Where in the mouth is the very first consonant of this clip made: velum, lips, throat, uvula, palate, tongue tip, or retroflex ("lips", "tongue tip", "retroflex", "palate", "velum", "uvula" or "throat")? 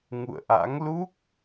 velum